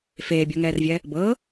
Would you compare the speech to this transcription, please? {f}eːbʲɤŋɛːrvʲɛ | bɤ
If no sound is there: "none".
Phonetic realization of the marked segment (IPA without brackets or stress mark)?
f